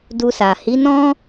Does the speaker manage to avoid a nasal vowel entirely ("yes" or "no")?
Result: no